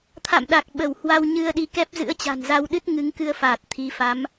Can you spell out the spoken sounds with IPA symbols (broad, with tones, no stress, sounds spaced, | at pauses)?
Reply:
t̪ʰ a̰˧˨ m ɗ a˨˩ k̚ ɓ ə˧˩ w h w a˧ w ɲ ɨ˧ ə̯ ɗ i˨˦ k ɛ˦˥ p̚ z ɨ̰˧˥ ə̯ t͡ɕ a̤˨˩ n z a˧ w ɗ ɨ˦˥ t̚ ŋ ɨ˨˦ ŋ k ɨ˧ ə̯ f aː˨˩ t̚ t̪ʰ i˨˦ f a˨˦ m